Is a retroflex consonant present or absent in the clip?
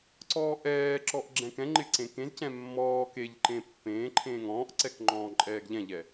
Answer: absent